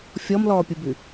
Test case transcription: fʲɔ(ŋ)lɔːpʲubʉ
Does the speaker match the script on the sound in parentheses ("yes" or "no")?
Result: no